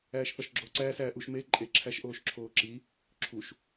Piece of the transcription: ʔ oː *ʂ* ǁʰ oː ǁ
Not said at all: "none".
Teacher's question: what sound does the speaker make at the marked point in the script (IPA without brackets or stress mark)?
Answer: ʃ